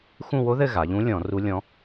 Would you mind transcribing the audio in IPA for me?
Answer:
x ũ˦˨ w o˧˥ ð ɘ˦˨ ɣ a˩˧ ʎ ũ˧˥ lʲ ɔ̃˧˩˧ r u˧˥ lʲ ɔ̃˧˥

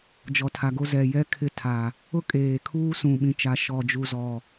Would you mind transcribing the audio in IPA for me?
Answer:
d͡ʒ ɔ˨ tʰ a˨ ɡ o˦ z ɛ˨ j ɛ˦ kʰ ɪ˦ tʰ a˨ | ʊ˦ kʼ eː˨ kʰ uː˦ s ũ˨ ɓ ĩ˨ t͡ʃ a˨ ʃ ɔ˨ d͡ʒ u˨ z ɔ˨

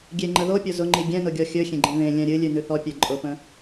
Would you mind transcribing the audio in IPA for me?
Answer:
ɡʲ e ŋ͡ǃ ə ð o pʲ o z ʊ ŋ͡ǃ i ɡʲ ɛ̃ n ʊ ɡʲ ɔ xʲ ɵ xʲ ẽ ɡ͡ǃ ẽ ð ẽ lʲ ɛ̃ ɾʲ ɨ lʲ ʉ n ʉ θ ɔ pʲ ɛ ǃʼ ʊ p ə̃

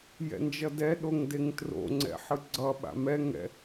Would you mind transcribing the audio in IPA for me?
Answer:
j ɛ̰ n d͡ʒ ʌ d ɛ ɗ o ŋ d e ŋ t r o̰ ŋ͡ǀ ɛ̰ ħ ɯ ɡ͡ǀ ʌ ɓ a̰ m ɛ ŋ ɛ̰

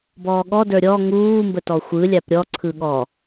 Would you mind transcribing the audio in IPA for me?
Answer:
b ɔː ɠ ɔ d ə˞ ɾʲ ɔ ŋ uː m b ə t ɔ xʷ ɯ lʲ a p ɾʲ ɔ ǀʰ ɯ ɠ ɔ

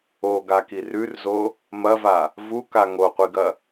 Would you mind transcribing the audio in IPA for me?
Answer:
o ɡ a k i r ʉ r z o | m ɐ v a | v u k a ŋ o qʷ i ɡ ɐ

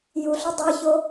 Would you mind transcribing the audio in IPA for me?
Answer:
j u ɬ u dˤ ə˞ ç o

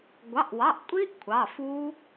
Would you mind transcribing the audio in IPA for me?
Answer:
ɡʷ ɑ˩˧˩ ʔ w ɑ˩˧˩ ʔ kʷʼ i˦˥ ʔ kʷʰ ɑ˩˧˩ f u˦˥

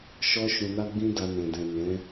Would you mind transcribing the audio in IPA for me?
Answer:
ʃ ɔ˦ ʃ ũ˧ n a˦ ɡ͡b ĩ˦ d a˧ n ɛ̃˨ d ɛ̃˨ n ɛ̃˨˦

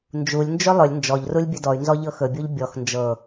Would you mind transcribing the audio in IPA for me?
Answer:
n d͡ʒ u lʲ n d͡ʒ ɵ lˠ ɵ lʲ n d͡ʒ ɔ ʎ r u lʲ bʲ ɵ d ɔ y̯ n z ɔ ʎ ɤ x ɵ bʲ u ʎ bʲ ɔ x n d͡ʒ ɤ

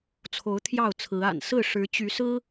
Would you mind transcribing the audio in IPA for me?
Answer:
t͡sʰ o˨˦ ʊ̯ t̪ʰ j ɑ˥˨ ʊ̯ t͡sʰ ɹ̩˨˦ a̰˨˩ n s ɹ̩˥˨ ʂ ɻ̩˨˦ t͡ɕ y˨˦ s ɹ̩˦

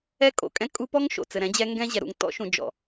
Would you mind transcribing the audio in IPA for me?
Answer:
ɛ˦ kʼ o̰˨ kʼ ɛ̃˦ kʼ u˦ p ɔ˦ ŋ ʃ o̰˨ t͡s ɘ˨ ɾ ɛ̃˨˦ d͡ʑ ɛ˦ ŋ ɡ ɛ̃˦ ʑ ɛ˨ ɾ ṵ˨ ŋ t ɔ̰˦ ʃ ũ˨ d͡ʒ ɔ̰˨

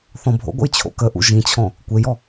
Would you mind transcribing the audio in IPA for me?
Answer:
θ ɔ̃ bʱ o̰ ɡʷ ə̰ j t͡ɕʰ o̰ k ə ʔ ṵ ʒ ĩ t͡ɕʰ ɔ̃ | kʷ e j ɔ

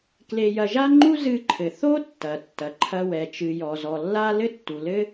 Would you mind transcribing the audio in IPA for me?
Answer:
k l e˧ j ɐ˧ ʒ a˥ ŋ͡ǃ u˥ z ɨ˧ ǃʰ ɘ˩ θ o˥ tː ɐ˩ tː ɐ˩ ǃʰ ɐ˧ w ɛ˩ t͡ʃ ɨ˩ j ɔ˩ z ɔ˩ lː a˥ l ɘ˥ tː u˩ l ɘ˥

